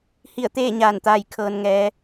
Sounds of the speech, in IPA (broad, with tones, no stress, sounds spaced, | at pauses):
h i˧˩ ə̯ t̪ eː˥˨ ɲ aː˧˩ n t̪ aː˧˩ j kʰ ɤː˩ n ŋ ɛː˩˧